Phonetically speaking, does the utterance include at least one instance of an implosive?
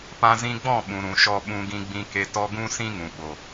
yes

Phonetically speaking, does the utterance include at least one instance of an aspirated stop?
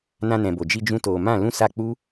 no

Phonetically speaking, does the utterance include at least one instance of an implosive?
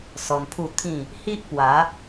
no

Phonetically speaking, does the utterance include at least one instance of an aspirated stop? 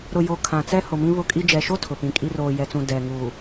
yes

